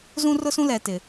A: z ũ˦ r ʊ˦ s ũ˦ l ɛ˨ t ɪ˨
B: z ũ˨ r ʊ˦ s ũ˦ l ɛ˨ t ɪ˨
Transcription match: A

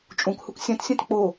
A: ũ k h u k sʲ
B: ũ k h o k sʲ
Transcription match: A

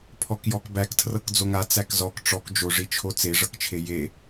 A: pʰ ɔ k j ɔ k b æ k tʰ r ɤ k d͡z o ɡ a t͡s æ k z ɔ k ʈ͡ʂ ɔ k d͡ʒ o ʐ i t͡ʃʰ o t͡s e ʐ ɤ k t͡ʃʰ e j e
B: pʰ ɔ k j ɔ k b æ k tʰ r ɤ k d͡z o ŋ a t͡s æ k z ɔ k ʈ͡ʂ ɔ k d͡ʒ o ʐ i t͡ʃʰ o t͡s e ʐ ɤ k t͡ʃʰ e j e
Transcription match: B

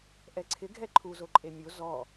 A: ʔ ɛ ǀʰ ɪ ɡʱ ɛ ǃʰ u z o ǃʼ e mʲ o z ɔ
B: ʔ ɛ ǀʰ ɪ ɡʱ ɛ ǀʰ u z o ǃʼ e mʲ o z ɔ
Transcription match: A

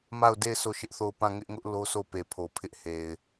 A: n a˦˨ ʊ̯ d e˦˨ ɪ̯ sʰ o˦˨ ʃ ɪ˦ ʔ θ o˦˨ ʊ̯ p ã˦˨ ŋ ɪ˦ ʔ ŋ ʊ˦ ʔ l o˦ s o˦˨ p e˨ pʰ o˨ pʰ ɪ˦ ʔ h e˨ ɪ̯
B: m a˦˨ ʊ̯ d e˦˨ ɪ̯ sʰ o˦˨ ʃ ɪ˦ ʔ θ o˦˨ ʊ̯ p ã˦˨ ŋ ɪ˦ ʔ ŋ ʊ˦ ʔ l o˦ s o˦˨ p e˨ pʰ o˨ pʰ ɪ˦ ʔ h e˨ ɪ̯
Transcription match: B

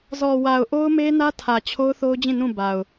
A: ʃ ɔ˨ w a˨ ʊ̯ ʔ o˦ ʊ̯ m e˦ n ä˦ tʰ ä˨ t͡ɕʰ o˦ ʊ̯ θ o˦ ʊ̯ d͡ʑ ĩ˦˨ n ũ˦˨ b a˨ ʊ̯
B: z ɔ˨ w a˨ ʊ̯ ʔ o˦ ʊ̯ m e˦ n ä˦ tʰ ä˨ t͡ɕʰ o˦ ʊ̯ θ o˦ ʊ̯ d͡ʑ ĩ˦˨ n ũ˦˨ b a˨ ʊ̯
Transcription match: B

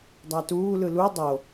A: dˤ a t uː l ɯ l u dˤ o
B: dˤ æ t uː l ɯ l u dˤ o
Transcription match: B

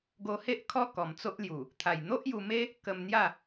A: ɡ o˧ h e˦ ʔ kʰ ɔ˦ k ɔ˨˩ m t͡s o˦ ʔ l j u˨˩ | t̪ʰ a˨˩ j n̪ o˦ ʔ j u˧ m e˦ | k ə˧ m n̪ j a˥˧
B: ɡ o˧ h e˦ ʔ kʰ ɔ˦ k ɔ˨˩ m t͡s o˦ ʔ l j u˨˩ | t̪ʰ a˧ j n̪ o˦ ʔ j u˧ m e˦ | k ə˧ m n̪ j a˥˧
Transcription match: A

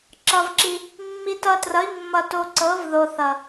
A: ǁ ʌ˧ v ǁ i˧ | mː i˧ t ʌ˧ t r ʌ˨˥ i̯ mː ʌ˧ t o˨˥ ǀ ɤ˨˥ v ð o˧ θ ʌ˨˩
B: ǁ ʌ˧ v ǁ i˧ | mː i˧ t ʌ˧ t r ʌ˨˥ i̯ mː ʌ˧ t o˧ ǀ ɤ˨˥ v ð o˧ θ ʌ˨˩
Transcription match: B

